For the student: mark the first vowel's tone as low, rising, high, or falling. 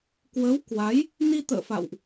rising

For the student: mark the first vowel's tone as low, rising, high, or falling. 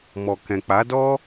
low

